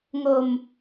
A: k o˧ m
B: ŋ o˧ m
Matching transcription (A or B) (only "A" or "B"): B